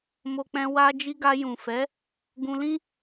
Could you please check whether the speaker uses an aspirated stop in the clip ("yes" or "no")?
no